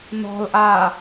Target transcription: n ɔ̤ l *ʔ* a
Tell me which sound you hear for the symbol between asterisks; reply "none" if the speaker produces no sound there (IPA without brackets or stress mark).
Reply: ʔ